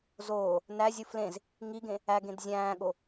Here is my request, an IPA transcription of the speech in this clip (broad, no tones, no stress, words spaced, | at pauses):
zoː | næzʲu flẽz | ŋiɡẽ | æɡẽd zʲæ̃ːɠo